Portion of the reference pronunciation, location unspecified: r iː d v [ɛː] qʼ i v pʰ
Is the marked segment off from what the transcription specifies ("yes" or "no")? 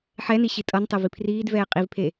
no